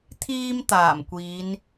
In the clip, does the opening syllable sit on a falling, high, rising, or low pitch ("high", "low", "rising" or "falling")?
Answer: high